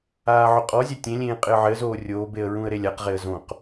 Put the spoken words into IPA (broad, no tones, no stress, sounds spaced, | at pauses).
aː ʕ ʊ qʼ ɔ zʲ ɛ tʲ ẽ lʲ ẽː qʼ ɪ ə̯ ʕ ɪ ə̯ z oː rʲ oː b e ə̯ ɹ ũ ə̯ ɾ e lʲ a q ʁ e ə̯ z õ q